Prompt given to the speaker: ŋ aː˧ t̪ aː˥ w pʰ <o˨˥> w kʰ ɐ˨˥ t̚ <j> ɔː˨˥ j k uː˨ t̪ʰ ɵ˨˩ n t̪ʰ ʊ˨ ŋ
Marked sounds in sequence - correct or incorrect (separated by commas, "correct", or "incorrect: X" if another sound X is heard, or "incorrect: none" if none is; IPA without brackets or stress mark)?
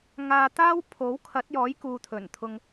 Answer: correct, correct